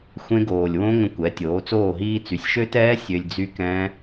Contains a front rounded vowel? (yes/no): yes